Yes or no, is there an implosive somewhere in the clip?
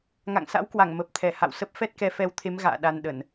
yes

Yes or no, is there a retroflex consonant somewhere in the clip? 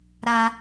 no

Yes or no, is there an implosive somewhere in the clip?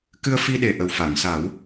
yes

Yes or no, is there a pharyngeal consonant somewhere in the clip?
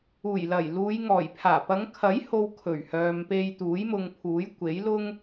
no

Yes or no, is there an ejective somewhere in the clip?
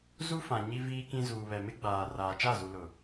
no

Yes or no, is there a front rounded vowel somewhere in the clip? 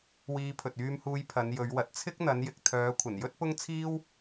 yes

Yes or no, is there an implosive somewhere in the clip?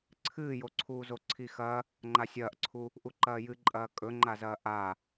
no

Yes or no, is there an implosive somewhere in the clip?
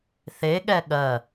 yes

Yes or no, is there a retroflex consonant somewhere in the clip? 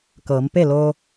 no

